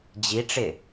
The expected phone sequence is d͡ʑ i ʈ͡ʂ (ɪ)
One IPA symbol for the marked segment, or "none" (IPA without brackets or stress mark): ɪ